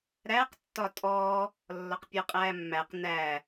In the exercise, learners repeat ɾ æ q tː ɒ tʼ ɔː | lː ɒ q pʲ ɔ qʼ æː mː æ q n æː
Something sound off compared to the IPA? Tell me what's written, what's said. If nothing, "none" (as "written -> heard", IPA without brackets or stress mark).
none